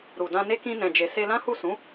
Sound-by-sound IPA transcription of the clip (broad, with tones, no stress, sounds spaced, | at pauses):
ɾ u˨ d ã˧ n e˦ k ĩ˧ n ɛ̃˨ d͡ʒ e˨ s e˧ l ã˦ h u˦˨ s ũ˨˦